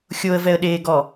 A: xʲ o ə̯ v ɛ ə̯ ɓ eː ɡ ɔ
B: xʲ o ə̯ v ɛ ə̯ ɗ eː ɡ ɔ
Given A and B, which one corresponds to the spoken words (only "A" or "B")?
B